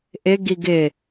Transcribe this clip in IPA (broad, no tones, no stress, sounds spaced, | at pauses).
ʔ ɪ ɡ i ɡ ɪ